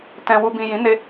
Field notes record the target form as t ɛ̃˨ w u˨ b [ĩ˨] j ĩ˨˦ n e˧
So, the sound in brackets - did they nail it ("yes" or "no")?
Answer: yes